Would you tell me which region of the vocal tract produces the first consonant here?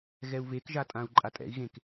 velum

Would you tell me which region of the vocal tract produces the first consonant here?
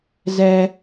tongue tip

